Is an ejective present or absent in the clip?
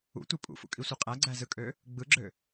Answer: present